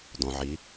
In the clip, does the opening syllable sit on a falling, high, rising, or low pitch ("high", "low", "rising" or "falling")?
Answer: low